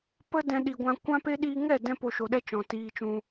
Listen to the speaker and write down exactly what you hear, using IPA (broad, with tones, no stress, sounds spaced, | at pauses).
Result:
p ə˦ d ɛ̃˧ ɗ i˨ ɡʷ ã˧ kʷ ã˦ p e˦ ɗ iː˧ ŋ ɛ˦˨ d ɛ̃˦ p o˧ ʃ o˨ ɗ ɛ˦ t͡ʃ ɔ̃˨ t iː˧ t͡ʃ ũ˧